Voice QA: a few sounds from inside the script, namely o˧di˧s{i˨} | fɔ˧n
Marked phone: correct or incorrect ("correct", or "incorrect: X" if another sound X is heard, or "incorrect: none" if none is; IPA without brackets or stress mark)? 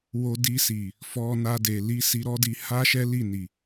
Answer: correct